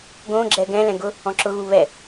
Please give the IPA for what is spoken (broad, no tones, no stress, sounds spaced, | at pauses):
ɡ õ ɡ͡ǁ ɛ ɡ ɛ̃ l ɛ̃ ɡ ʊ | ɔ̃ ǁ ʊ ɣ u β ɛ